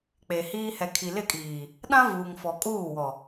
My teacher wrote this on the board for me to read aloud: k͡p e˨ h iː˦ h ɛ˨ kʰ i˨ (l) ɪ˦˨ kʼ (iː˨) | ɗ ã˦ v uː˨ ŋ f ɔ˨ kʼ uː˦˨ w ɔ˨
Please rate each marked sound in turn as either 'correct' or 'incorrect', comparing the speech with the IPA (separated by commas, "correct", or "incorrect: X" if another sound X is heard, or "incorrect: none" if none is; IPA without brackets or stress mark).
correct, correct